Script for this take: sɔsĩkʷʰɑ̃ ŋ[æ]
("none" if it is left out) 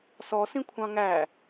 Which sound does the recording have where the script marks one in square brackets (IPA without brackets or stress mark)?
æ